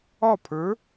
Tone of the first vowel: falling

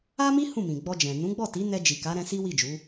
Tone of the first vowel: high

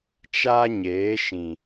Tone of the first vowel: high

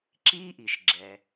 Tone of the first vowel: high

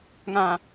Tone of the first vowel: low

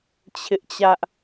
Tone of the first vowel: high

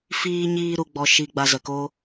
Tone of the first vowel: high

